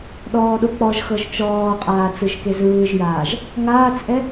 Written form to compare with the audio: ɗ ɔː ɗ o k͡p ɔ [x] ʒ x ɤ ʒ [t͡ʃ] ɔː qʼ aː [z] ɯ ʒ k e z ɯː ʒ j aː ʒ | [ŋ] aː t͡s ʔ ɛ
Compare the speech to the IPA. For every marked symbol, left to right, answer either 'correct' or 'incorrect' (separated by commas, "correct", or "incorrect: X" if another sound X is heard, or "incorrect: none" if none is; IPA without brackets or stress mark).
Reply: incorrect: none, correct, incorrect: t͡s, correct